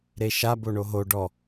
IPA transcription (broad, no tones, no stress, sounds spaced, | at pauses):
ɾ e ʃ a b o ɳ o ɦ o ɖ ɔ